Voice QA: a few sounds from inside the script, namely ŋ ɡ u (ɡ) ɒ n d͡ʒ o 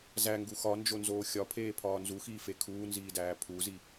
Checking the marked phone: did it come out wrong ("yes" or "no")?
yes